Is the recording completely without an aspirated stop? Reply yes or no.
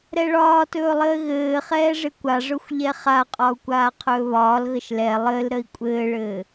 no